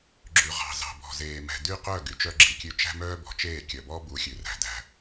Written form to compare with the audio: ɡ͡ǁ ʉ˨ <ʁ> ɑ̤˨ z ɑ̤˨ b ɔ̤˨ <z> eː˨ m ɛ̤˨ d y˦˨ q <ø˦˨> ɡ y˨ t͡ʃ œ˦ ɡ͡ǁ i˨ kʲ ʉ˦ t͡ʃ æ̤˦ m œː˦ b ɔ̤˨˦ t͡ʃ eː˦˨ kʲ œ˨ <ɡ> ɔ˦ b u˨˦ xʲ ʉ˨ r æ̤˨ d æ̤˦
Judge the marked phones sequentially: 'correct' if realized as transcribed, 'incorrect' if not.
correct, correct, incorrect, incorrect

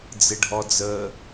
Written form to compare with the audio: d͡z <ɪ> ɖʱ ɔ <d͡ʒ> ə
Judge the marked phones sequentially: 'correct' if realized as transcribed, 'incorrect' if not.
correct, incorrect

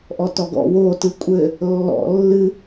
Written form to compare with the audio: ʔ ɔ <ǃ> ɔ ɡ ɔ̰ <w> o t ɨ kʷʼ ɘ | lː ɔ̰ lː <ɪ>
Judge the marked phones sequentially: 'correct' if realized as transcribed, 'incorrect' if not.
incorrect, correct, incorrect

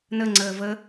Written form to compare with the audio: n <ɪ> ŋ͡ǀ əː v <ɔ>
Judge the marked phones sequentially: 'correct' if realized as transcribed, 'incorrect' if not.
incorrect, incorrect

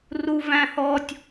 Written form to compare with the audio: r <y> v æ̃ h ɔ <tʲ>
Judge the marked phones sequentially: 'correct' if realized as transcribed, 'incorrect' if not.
incorrect, correct

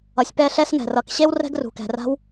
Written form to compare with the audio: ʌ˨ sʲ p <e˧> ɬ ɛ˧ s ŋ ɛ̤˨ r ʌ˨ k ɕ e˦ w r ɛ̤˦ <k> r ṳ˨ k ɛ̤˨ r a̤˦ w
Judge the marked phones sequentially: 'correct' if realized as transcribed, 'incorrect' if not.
incorrect, incorrect

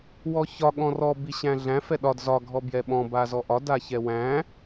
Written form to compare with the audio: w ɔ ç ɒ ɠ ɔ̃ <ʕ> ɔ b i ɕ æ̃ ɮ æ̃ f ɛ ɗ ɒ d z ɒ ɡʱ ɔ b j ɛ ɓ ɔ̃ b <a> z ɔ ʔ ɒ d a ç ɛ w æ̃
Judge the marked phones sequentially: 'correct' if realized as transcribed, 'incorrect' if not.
incorrect, correct

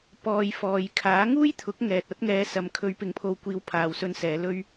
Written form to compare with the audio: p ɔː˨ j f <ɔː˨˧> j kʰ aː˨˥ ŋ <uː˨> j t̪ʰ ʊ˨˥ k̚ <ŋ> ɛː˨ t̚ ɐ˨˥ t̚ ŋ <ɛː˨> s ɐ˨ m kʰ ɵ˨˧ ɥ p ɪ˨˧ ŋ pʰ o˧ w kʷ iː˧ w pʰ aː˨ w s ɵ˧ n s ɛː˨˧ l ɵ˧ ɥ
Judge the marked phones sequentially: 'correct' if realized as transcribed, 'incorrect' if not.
incorrect, incorrect, correct, incorrect

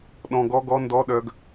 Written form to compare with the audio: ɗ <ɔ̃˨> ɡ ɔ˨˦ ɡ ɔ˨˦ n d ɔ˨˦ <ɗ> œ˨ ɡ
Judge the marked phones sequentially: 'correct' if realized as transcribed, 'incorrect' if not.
correct, correct

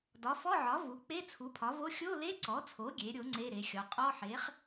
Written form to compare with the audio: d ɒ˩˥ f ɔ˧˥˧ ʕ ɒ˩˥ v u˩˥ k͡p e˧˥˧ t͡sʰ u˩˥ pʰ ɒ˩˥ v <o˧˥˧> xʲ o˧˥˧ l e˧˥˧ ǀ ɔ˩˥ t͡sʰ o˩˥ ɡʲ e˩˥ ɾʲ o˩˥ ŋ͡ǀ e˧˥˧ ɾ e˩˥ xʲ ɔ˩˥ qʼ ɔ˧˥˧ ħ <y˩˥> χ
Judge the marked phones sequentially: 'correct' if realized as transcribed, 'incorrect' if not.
correct, incorrect

